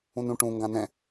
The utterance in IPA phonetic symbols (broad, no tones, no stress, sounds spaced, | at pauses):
ũ n ũ ʈ ũ ŋ ɡ ã n ɛ̃